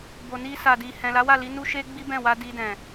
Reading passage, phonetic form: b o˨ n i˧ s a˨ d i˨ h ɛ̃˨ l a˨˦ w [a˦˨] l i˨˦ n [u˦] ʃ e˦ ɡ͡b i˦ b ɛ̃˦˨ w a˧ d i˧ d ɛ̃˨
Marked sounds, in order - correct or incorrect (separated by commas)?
correct, correct